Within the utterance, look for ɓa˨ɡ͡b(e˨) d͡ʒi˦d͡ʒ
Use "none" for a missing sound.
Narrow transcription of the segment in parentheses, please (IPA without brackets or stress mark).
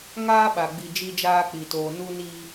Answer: i˨